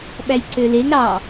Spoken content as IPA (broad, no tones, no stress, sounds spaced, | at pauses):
ɓ æ j ǀ ø l e ŋ ɾ ɑ